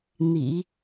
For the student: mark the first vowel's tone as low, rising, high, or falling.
low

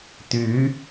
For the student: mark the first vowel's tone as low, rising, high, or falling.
rising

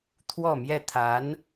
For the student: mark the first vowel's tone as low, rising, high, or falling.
falling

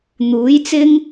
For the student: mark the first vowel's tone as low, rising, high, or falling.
rising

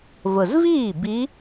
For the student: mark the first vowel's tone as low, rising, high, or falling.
low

